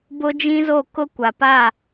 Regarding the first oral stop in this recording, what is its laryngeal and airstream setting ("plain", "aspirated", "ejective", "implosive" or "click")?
plain